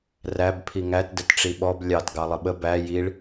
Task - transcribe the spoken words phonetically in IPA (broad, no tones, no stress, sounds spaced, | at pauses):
r æ b pʰ i ŋ æ t d ə t ʈ͡ʂ i ɓ ɔ b lʲ ɑ t ɡ ɑ lˠ ə ɓ ə b æ j i ɭ